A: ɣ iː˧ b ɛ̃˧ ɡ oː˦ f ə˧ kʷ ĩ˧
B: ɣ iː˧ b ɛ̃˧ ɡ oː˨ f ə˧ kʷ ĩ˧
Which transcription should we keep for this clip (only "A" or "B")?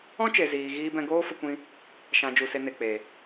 A